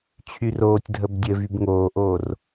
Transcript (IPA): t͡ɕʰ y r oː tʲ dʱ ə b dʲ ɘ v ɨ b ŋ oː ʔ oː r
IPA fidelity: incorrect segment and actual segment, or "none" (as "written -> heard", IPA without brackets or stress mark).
ɨ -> y